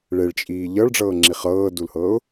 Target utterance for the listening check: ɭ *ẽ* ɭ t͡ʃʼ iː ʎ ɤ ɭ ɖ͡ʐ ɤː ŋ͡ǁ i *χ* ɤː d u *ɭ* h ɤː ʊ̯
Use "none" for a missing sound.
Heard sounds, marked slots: e, χ, l

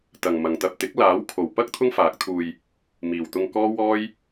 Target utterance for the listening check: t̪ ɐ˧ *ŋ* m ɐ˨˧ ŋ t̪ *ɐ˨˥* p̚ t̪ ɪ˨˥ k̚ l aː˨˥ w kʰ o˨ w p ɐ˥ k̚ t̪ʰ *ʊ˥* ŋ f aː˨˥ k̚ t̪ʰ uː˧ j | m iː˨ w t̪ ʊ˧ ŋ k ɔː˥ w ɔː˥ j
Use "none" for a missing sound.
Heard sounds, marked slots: ŋ, ɐ˨, ʊ˥

